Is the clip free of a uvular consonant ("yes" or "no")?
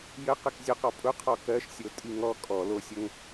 no